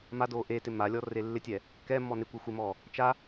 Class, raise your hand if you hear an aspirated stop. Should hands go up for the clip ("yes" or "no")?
no